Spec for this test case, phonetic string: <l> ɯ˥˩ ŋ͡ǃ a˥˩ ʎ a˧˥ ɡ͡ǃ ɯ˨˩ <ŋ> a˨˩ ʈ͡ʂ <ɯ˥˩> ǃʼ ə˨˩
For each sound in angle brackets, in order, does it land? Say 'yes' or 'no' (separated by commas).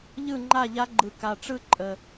no, no, yes